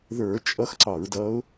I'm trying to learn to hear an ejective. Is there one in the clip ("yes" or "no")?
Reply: yes